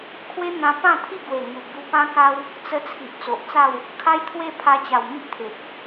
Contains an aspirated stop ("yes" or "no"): yes